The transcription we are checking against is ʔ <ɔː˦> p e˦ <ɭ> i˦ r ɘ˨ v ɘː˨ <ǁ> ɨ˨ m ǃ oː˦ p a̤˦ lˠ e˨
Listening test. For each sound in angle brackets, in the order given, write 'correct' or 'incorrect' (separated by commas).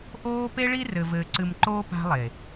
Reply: incorrect, correct, incorrect